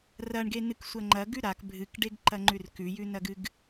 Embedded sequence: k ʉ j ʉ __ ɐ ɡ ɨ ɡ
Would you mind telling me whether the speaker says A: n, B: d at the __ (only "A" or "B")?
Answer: A